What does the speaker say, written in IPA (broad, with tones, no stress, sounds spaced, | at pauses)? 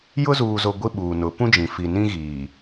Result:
j ʊ˦ z uː˨ z o˨ ɡʷ i˦ ɓ uː˨ n ʊ˨˦ p ũ˦ d͡ʒ ĩ˨ f i˨ n ĩ˦ ɣ iː˨